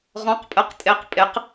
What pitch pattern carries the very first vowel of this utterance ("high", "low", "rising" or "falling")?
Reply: rising